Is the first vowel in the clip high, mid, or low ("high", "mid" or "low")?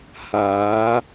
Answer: low